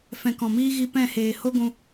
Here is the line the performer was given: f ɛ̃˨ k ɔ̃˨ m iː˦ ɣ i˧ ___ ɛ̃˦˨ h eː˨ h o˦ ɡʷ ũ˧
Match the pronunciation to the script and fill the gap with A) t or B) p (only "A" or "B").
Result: B